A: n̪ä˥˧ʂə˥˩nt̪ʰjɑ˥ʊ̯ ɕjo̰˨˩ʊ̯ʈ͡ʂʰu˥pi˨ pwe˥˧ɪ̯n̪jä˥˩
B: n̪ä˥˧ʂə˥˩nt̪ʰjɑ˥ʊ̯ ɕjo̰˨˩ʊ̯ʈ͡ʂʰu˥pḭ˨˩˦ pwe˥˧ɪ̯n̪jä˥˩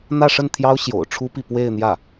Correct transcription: A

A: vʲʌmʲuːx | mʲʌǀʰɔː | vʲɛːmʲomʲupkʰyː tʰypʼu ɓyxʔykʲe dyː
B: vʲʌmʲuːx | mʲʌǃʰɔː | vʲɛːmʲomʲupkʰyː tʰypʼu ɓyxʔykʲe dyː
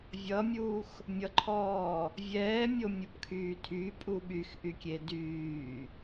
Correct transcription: B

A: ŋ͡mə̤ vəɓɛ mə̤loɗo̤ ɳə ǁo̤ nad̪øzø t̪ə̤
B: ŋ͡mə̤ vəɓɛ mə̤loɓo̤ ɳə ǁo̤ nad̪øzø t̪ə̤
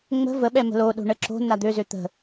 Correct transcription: A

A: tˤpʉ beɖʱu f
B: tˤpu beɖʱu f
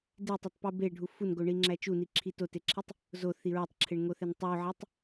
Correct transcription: B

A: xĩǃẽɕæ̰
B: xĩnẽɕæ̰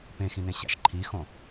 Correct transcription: B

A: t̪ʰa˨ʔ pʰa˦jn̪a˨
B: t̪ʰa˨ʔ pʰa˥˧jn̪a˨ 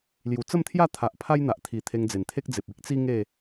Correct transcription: A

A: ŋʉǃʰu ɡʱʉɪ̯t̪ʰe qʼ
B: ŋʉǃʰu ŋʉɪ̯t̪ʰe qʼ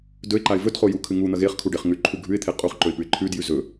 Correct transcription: A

